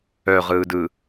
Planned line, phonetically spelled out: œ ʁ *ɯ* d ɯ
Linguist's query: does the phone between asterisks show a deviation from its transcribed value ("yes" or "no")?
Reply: yes